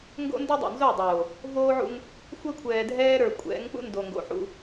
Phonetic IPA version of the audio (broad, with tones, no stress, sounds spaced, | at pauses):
ŋ ɡ o̰˦ n d o˦ dˤ o̰˨ n z o˦˨ dˤ oː˨ | v oː˦ ʕ ṵ˦ ŋ | xʷ ɛ˦ kʷʰ ɛː˨ dʱ ɛː˦ ɾ ə˞˨ kʷʼ ɛ̰˨˦ ŋ k͡p ṵ˦ n d o˨ ŋ ɡ o̰˨ ħ ṵ˨